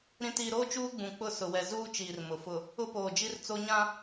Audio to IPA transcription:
ɾ ĩ˨ t iː˨ ɾ oː˦ t͡ʃ uː˦ ɡ͡b ũ˨ k͡p ʊ˦˨ s ʊ˨ w ɛ˨ z uː˦ t͡ʃ iː˨ r m ʊ˨ f ʊ˨ | ʊ˦ p oː˨ d͡ʒ i˦ r t͡s o˦ ɲ ã˦

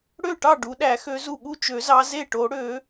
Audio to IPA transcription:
ɽ ø˥˩ ʈ ɑ˥˩ ɖ u˨˦ ɗ æ˨˩˦ x ø˨˦ z u˥˩ ɠ u˥˩ t͡ʃ ø˨˩˦ z ɑ˨˦ z e˥˩ ʈ o˨˩˦ ɽ ø˨˩˦

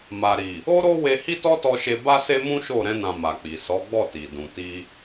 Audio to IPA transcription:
m a˨ ɾ i˨ | o˦ ɾ o˦ w e˧ h i˦ t ɔ˦ t ɔ˧ ʃ e˧ b a˦ s e˦ m ũ˦ ʃ o˦˨ ɾ ɛ̃˧ n ã˨ m a˨ k͡p i˨ s ɔ˨˦ ɡ͡b ɔ˦˨ t i˨ d ũ˨ t i˧

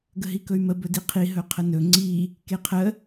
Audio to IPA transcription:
ɡ ə ɦ i k ɵ y̯ m ə b ɵ d i qʰ i ɦ ɵ qʰ ə n ɵ ŋ͡ǀ i | k e qʰ ə

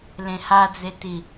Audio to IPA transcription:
l ẽ h a d͡z e t i

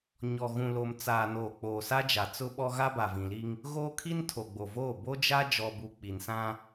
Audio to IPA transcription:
ɲ ɔ˨ ɣ ũ˨ l o˨ m t͡s aː˨ n oː˨ k͡p oː˨ s a˦ d͡ʒ a˨ t͡s ʊ˦ ɓ ɔ˦ ɣ a˦ b a˨ v ĩ˨ l i˦ ŋ | ɣ oː˦ kʰ i˦ n tʰ o˨ ɡ͡b o˨ v oː˦˨ b o˦ d͡ʒ a˦ d͡ʒ ɔ˨ b u˨ k͡p i˨ n s ã˦

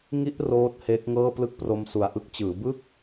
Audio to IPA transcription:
ŋ i˦˥ ʔ r oː˦˥ t̚ h e˦˥ k̚ ŋ ɤː˥˩ p l ɯ˦˥ k̚ p r o˧ m s u˨˩ a̯ ʔ ɯ˦˥ k̚ t͡ɕ ɯː˩˦ b ɯ˥˩ k̚

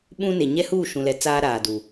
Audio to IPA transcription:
ɓ ũ˦ n e˨ ɲ ɛ˦ h uː˦˨ ʃ ũ˨ l ɛ˨ t͡s aː˦ ɾ aː˨ d u˨

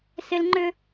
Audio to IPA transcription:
s ɪ˦ l ŋ͡ǃ ʏ˦

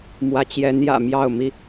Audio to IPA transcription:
m w ä˧˥ t͡ɕ j ɛ˧˥ n j ä̰˨˩ m j ɑ˥˩ ʊ̯ m i˥

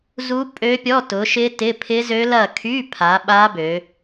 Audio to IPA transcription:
z u˦˥ pʼ ø˦˥ pʲ ɔ˧˥˧ t ʊ˨˦ ʃ ɪ˦˥ t ɪ˧˥˧ pʰ ɪ˦˥ z ø˦˥ l ɐ˦˨ kʰ y˧˥˧ pʰ a˨˦ ɓ a˦˥ b ø˨˦

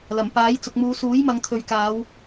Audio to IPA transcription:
l ɐ˨˩ m p aː˨˥ j t͡s ʊ˨ k̚ m uː˨˧ s uː˨˥ j m ɐ˨˧ ŋ t̪ʰ ɵ˨ ɥ k aː˨˧ w

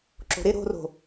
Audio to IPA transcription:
ǁ o̤ ɾ ɪ ɾ o̤ r o̤

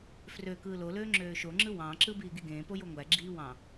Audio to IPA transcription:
f r ø k ɯː l o l øː ŋ͡ǁ øː ʃ o ŋ͡ǁ ɯ w ɑ̃ ǁ ɯ b iː ɡ i ɡ ẽː p o j o ŋʷ æ ɡ͡ǁ iː w ɑ̃

